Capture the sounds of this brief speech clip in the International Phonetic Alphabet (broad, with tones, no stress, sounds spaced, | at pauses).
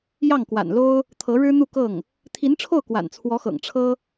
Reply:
j ɑ˥˩ ŋ k w a̰˨˩ n l o˥ ʊ̯ | t̪ʰ ɤ˧˥ ɻ ɻ̩˥ n̪ u˥˧ k ɤ˥˩ ŋ | t̪ʰ i˧˥ n ʈ͡ʂʰ o˥˩ ʊ̯ k w a̰˨˩ n t͡sʰ w ɔ˧˥ x ɤ̰˨˩ ŋ ʈ͡ʂʰ ɤ˥